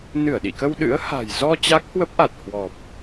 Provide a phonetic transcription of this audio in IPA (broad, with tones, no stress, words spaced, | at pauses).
nɨ˧˩ə̯ɗḭ˧˨kə˧w ɗɨ̰˧˥ə̯ha̤˨˩j zɔ˧ t͡ɕa˦˥k̚hwə˦˥p̚ʔa˨˩t̚ hwɔ˨˩p̚